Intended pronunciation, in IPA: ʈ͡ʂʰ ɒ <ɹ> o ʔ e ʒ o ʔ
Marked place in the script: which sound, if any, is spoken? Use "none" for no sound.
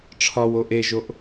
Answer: w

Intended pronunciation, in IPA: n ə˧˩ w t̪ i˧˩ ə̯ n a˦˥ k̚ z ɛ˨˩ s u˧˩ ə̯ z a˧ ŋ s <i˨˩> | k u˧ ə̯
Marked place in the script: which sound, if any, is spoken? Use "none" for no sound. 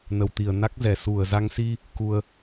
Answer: i˧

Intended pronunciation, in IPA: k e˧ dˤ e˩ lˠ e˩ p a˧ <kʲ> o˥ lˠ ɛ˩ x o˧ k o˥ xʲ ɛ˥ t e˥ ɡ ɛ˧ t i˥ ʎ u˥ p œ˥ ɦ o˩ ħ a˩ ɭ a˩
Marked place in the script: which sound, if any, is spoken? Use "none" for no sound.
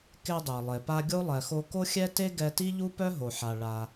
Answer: ɡʲ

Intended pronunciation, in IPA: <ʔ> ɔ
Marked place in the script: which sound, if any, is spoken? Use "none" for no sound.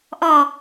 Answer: ʔ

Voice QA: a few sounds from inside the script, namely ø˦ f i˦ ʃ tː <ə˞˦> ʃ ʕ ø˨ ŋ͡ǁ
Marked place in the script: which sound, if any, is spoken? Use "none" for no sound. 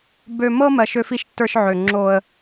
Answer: ə˞˦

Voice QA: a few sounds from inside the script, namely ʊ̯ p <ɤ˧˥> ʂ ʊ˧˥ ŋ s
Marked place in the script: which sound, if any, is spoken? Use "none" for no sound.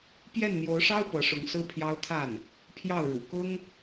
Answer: ɤ˧˥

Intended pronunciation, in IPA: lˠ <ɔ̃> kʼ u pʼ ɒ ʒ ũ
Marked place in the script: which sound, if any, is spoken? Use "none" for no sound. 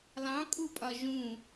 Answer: ɑ̃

